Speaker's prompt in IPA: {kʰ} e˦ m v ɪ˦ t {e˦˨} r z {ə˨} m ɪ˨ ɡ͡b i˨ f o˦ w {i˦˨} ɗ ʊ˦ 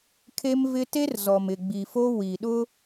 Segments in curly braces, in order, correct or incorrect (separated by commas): correct, incorrect, incorrect, incorrect